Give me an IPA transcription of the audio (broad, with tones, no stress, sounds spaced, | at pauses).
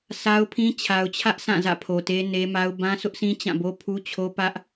sʰ a˦ ʊ̯ pʰ ĩ˦ t͡ɕʰ a˨ ʊ̯ t͡ɕʰ ä˦ ʔ sʰ ã˦˨ z ä̰˦˨ pʰ o˨ t e˦ n e˦ m a˦ ʊ̯ b ã˦ sʰ ʊ˦ ʔ s ĩ˦ t͡ɕ ã˦˨ b o˦ pʰ u˦ t͡ɕʰ o˦ p ä˦ ʔ